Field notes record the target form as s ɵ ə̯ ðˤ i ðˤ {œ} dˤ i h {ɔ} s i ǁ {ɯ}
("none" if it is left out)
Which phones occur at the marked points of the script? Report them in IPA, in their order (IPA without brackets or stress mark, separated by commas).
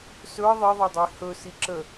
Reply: ɛ, ɵ, ə